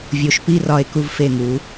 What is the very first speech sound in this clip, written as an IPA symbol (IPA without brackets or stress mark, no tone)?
vʲ